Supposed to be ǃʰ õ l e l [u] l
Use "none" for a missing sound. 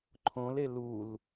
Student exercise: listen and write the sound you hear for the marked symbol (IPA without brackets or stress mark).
u